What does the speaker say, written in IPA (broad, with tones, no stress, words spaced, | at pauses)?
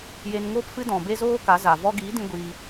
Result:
je˧n ŋoː˦pfɨ˦ dɔ̃˨ be˦zoː˦ka˨˦za˨ vɔ˧ɡiː˨˦dĩ˧ ɡʷiː˧